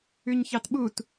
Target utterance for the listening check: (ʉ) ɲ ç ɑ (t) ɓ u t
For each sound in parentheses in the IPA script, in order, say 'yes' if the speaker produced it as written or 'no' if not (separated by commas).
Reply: yes, yes